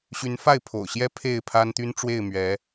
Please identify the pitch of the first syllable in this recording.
rising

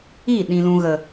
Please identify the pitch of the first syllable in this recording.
falling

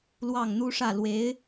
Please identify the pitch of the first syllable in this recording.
falling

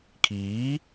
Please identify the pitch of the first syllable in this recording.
rising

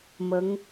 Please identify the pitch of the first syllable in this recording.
rising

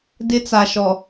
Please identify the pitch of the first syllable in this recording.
high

